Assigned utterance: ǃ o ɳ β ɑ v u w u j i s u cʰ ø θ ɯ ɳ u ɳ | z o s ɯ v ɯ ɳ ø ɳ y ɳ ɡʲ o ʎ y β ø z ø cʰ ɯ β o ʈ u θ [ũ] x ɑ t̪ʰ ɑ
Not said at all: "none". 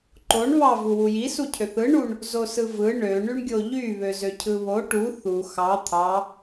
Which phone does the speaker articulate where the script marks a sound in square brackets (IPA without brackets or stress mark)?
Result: u